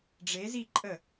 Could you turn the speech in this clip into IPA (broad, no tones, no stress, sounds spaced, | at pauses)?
ɖ͡ʐ e z i ǃʼ ə